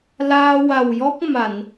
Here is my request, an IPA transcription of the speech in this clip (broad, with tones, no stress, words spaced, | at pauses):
laː˧wa˨˩wjɔ˦˥k̚ ma˨˩˨n